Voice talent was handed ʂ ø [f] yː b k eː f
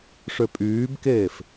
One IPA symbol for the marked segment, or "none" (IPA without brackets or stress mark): pʼ